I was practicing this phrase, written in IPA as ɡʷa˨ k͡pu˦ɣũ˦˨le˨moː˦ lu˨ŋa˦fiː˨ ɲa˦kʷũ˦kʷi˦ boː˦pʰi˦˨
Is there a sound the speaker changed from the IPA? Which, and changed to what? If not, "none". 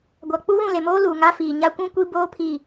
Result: none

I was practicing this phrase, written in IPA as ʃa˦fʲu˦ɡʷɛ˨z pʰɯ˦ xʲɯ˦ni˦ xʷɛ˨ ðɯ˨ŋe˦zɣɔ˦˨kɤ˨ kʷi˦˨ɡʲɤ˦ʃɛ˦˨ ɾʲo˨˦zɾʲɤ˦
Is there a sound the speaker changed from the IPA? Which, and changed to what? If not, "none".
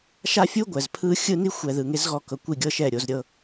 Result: none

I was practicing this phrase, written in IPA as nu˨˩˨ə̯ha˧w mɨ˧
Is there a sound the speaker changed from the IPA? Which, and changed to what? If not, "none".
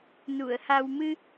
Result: none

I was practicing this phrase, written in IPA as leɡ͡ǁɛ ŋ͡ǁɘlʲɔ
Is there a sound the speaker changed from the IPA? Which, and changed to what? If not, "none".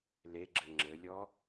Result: ɛ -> ɘ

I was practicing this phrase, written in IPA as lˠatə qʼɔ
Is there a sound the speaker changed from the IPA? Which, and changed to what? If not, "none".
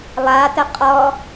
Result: none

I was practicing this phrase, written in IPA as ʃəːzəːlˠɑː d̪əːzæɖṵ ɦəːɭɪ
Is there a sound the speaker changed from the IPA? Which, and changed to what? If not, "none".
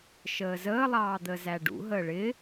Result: none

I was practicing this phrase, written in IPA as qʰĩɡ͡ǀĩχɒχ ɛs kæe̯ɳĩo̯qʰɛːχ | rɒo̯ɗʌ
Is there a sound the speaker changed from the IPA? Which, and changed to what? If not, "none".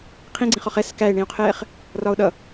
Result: none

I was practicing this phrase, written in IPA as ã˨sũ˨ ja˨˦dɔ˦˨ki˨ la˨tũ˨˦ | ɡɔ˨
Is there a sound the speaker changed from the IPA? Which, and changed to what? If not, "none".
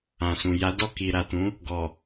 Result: l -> ɾ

